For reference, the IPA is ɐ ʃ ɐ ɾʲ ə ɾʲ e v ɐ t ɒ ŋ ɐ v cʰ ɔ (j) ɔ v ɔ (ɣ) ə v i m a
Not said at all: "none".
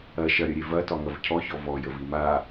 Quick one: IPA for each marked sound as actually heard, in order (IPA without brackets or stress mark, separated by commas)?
ç, j